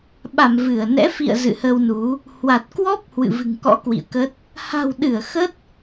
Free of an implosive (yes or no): no